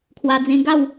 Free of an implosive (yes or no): yes